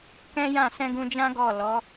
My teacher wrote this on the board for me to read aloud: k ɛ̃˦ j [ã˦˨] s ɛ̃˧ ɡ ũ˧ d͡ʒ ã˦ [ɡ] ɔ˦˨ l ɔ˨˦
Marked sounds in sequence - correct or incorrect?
correct, correct

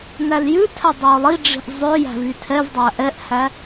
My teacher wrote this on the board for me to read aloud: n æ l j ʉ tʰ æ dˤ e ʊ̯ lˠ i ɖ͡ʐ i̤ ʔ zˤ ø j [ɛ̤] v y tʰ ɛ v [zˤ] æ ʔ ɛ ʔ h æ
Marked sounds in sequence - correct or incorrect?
incorrect, incorrect

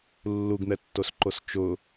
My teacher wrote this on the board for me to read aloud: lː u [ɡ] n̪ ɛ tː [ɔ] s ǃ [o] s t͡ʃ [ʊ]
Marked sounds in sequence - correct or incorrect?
correct, incorrect, correct, correct

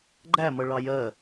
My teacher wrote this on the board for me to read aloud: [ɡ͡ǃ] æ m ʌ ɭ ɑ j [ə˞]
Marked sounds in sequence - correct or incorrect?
correct, incorrect

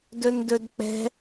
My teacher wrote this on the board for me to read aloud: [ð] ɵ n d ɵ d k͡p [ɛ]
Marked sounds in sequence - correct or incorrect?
incorrect, incorrect

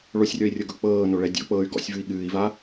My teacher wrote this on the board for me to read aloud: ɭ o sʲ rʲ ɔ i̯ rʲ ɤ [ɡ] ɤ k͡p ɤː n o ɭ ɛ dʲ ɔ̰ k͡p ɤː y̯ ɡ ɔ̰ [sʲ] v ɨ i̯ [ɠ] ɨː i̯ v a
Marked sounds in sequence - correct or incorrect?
correct, correct, correct

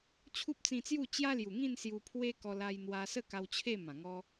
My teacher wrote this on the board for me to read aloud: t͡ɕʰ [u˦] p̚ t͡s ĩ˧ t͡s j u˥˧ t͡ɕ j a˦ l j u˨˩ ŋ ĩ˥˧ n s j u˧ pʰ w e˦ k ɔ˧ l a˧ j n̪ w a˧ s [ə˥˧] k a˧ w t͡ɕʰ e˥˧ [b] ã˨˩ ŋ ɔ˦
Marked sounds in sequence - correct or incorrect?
correct, correct, incorrect

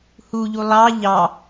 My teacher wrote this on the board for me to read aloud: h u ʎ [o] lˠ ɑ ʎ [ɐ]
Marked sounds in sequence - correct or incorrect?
incorrect, incorrect

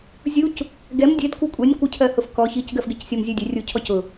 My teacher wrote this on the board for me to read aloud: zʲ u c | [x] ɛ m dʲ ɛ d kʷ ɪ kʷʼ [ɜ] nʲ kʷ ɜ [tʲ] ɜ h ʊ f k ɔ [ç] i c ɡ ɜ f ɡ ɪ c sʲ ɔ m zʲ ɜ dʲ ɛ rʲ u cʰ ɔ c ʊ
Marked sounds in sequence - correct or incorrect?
incorrect, incorrect, incorrect, correct

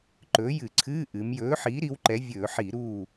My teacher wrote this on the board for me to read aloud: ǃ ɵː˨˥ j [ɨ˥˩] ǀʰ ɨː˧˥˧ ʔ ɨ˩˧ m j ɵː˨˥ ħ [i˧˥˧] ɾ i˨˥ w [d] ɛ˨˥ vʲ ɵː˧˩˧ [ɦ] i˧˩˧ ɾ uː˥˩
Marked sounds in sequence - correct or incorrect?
incorrect, incorrect, incorrect, incorrect

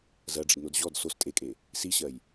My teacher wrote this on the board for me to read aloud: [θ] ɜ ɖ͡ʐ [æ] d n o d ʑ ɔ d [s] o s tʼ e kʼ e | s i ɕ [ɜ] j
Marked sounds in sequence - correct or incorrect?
incorrect, incorrect, correct, correct

